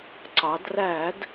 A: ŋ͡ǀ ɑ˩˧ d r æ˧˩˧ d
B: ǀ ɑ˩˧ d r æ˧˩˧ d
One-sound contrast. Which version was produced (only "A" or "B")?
B